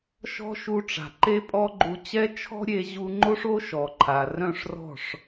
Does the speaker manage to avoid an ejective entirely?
no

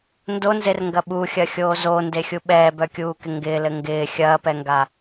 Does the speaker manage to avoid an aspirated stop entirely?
yes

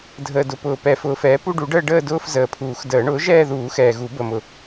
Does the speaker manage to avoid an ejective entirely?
yes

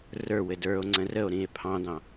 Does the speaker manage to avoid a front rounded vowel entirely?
yes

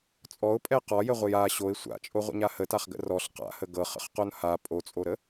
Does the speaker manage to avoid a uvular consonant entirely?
no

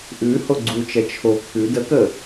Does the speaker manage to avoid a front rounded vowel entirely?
yes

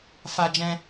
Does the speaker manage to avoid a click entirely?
yes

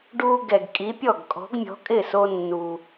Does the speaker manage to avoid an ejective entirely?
no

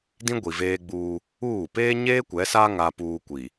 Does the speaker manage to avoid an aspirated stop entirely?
yes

